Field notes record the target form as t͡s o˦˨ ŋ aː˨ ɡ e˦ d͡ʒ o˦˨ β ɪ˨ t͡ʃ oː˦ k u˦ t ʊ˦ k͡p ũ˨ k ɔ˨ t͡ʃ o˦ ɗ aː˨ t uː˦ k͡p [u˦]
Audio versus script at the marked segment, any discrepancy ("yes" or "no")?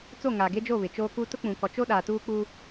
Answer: no